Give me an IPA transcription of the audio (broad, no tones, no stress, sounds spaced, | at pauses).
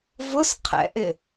v ʊ s qʰ ɛ̰ ʔ ɪ